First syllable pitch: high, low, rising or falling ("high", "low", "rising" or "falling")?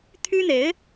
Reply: high